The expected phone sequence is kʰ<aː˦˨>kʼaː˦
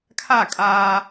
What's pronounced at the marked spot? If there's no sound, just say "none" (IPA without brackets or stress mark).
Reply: a˦˨